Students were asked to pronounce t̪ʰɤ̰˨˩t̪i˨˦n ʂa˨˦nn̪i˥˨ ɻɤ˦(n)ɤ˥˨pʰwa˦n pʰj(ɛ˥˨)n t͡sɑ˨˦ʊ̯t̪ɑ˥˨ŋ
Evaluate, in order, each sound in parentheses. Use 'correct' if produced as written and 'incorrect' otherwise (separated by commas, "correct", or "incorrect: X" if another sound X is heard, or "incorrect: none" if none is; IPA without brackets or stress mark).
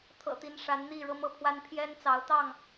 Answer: incorrect: m, incorrect: ɛ˦